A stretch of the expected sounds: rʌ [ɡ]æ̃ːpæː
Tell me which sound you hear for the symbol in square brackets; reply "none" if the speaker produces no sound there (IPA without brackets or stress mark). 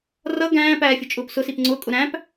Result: ɡ